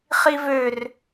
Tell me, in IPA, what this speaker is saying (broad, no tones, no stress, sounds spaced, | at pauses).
χ i v ø r